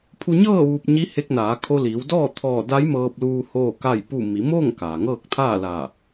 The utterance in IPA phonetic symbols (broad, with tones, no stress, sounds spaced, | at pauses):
pʰ u˧ ɲ ɤː˥˨ ʋ uː˧ p̚ ɲ i˧˥ h e˧ k̚ n aː˩˧ kʰ o˧ l iː˩˧ w d ɔː˥˨ t̪ʰ ɔː˧˩ d a˧˥ j m ɤː˧ p̚ l uː˧ h oː˥˨ k a˥˨ j p u˥˨ m i˩˧ m oː˥˨ ŋ k aː˩ ŋ ɤː˥˨ k̚ t̪ʰ aː˥˨ l aː˧˩